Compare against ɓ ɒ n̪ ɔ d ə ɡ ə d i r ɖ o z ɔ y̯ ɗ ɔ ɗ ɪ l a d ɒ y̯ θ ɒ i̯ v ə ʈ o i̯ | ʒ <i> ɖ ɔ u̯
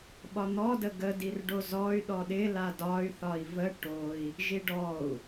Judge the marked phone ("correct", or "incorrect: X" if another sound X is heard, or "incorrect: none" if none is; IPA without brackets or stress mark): correct